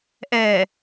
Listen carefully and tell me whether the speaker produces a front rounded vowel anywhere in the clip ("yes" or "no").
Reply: no